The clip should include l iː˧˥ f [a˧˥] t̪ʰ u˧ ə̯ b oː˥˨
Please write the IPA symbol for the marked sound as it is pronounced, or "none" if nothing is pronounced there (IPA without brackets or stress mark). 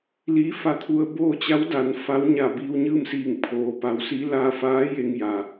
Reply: a˧˥